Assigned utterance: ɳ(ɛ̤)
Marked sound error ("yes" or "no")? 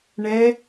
yes